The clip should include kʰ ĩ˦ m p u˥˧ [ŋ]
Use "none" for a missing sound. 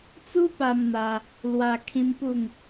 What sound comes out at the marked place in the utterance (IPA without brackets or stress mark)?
ŋ